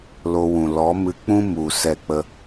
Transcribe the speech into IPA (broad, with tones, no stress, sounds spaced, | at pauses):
l o˧ w ũ˨ l ɔ˨˦ m ɨ˧ k͡p ũ˦ m u˨ s ɛ˦˨ k͡p ə˦